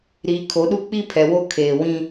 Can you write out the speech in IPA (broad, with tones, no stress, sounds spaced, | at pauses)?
ɾ iː˨ kʰ o˨˦ ɗ u˦ k͡p i˦ pʰ ɛ˨ w o˦ kʰ eː˨ w ĩ˦